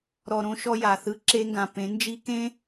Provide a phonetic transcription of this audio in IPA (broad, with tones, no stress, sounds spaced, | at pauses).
ɾ ɔ˨ ɾ õ˦ ʃ ɔ˦ j a˨ θ ɯ˦ ǁ e˦ ŋ ɡ ã˨ p ẽ˨˦ n d͡ʒ i˦ k ẽ˦